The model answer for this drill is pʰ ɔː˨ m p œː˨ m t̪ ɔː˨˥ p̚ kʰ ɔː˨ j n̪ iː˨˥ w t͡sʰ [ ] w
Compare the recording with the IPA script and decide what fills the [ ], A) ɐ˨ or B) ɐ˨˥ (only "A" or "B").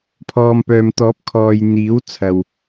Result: A